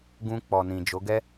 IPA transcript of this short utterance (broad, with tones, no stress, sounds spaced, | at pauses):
ɡ ũ˧ k͡p ɔ˨ n ĩ˨ d͡ʒ o˨˦ ɡ ɛ˦